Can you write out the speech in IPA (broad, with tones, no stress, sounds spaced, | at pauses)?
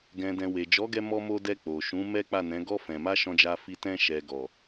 ɡ ɛ̃˨ d ɛ̃˨ w e˨ d͡ʒ ɔ˨˦ ɡ ɛ˧ m ɔ˧ m o˧ d ɛ˧ k͡p o˨ ʃ ũ˨˦ m ɛ˦ k͡p a˦˨ n ɛ̃˨˦ ɡ ɔ˦ f ɛ̃˧ m a˦ ʃ ɔ̃˧ d͡ʒ a˧ f i˧ t ɛ̃˧ ʃ ɛ˨ ɡ ɔ˨